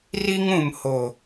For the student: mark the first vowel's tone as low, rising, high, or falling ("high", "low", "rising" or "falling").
high